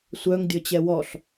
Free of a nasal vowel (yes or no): yes